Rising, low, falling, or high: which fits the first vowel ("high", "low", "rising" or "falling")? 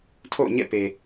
falling